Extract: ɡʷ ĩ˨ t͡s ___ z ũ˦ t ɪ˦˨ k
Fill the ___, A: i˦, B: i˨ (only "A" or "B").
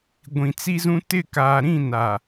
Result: A